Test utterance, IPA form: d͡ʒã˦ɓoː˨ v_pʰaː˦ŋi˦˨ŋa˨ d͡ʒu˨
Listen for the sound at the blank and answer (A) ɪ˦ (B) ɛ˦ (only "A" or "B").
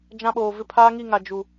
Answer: A